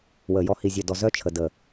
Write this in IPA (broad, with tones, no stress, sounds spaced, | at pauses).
w əː˨ j ɔ˧ h i˨ zʲ œ˨ d ɔ˨ z œ˦ t͡ʃʰ ə˨ d əː˨